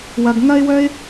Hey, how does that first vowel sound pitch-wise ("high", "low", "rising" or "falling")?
low